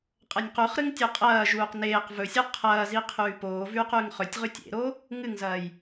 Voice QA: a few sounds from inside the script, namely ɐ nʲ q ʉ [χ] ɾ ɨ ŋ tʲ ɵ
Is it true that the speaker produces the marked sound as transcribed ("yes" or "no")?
yes